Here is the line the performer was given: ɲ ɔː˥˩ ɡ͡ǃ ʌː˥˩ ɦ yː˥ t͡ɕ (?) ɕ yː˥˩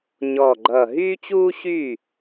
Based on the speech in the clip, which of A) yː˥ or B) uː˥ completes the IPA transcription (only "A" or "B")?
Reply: B